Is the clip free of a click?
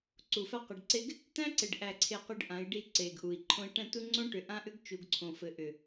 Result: no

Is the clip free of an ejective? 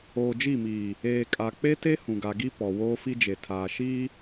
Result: no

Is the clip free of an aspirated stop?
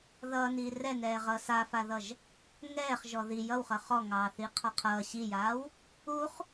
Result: no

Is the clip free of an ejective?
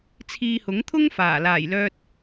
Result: yes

